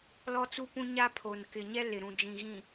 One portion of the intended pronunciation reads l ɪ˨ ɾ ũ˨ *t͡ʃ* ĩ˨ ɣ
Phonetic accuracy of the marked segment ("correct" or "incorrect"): incorrect